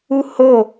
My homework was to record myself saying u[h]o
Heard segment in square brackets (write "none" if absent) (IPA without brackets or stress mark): h